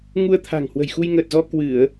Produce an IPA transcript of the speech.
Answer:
ŋ u˧ ə̯ t̪ʰ a̤˨˩ ŋ h w ə̤˨˩ j x u˧ j ŋ əː˨˩ t̚ z ɔ˧ k w ɨ˧˩˨ ə̯

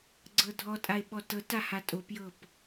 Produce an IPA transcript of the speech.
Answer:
ɡ͡ǀ ɤ dʱ ɔ tʼ a e̯ ɓ ɔ t ɤ t a h a tʼ o p j ɤ p

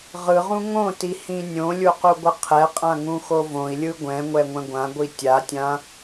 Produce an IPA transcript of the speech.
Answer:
ʁ ɯ ʁ ũ ŋ õ t i h ĩ nʲ õ lʲ u q u ɡʷ ɯ qʰ ɛ qʼ ã ŋ ũ x o v õ i̯ lʲ ɯ ɡʷ ɛ̃ ŋʷ ɛ ŋʷ ɛ̃ ɡʷ ã ɡʷ i tʲ a tʲ ã

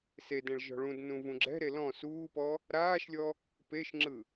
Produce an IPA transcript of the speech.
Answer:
s e d ɛ̃ ɭ ʒ ɔ̤ ɭ ũ d n ũ v ũ ɡ͡ǁ ɛ̤ ɾ e l ɔ̃ s uː p ɔ | ɾ aː ʃ lʲ ɔ | p e ʃ ŋ͡ǁ ɯ

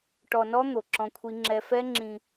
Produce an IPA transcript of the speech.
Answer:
ʈ ɔ˧ n ɔ˦ n̪ o˧ ǁ ɔ̃˦ kʷʰ i˦ ŋ͡ǁ ɛ˦ f ɛ˦ ŋ͡ǁ ĩ˧

